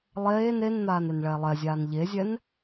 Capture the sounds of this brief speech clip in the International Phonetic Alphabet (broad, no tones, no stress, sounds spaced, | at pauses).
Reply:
lˠ eː n e n n̪ aː n e n ɭ ɛː lˠ ɛ zʲ aː n ʎ e zʲ ɛ n